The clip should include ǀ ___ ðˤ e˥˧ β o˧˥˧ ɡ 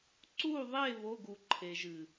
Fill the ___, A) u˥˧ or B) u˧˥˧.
A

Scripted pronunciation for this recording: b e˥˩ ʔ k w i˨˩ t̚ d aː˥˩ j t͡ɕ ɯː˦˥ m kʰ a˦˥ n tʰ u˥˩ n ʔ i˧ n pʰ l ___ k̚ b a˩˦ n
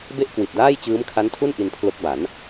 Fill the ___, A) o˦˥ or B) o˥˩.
A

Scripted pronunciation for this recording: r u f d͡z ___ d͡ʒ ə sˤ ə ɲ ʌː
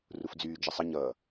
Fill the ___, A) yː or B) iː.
A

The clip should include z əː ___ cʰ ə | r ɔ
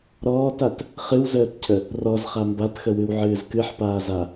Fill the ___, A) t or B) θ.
A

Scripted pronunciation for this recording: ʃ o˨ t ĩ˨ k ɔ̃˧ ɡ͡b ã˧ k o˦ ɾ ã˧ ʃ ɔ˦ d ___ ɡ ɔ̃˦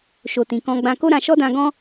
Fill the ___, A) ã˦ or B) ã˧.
B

